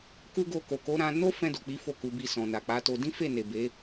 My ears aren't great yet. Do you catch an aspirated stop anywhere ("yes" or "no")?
no